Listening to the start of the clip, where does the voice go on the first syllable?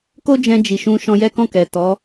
high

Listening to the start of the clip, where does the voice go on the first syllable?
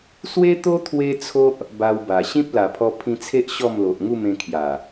high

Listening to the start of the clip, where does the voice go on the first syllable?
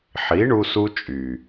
rising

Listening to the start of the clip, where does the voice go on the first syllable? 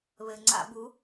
low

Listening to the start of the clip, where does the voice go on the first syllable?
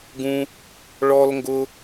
high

